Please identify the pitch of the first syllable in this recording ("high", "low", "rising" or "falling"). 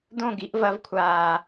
falling